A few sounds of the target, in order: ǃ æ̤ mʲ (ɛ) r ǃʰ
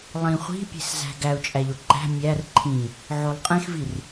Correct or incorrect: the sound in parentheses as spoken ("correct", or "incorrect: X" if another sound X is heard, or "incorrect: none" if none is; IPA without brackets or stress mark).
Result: incorrect: æ